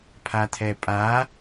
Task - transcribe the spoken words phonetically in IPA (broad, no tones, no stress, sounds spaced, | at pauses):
pʰ a t̪ʰ ɛ pʼ a